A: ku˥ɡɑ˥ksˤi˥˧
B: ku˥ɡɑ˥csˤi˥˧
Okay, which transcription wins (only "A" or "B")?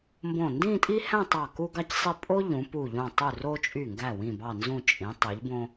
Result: B